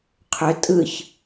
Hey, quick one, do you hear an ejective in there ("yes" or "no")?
yes